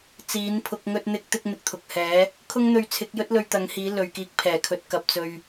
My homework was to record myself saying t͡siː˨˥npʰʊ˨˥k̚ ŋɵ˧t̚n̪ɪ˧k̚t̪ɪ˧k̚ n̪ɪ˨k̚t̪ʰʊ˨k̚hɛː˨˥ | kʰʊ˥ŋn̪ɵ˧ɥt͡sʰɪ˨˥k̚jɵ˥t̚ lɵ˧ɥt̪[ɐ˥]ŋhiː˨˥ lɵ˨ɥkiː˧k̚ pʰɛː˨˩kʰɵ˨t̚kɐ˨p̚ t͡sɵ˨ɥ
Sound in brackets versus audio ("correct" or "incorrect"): incorrect